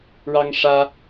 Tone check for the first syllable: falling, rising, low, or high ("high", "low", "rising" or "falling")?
high